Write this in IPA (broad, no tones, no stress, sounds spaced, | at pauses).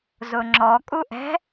z ʊ ŋ͡ǁ ɔ kʼ u ʔ ɛ̤